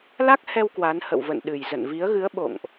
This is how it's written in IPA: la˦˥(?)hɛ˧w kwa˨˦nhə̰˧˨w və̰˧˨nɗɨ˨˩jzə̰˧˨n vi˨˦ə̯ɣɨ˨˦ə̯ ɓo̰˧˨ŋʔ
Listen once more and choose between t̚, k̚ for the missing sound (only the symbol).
k̚